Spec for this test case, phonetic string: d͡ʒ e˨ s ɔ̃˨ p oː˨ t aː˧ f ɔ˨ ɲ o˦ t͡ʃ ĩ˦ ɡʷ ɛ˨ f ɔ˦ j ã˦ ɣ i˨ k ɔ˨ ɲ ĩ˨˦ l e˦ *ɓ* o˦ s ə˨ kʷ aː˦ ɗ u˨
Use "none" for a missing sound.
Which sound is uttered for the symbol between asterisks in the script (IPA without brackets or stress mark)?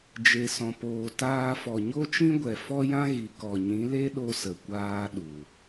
ɗ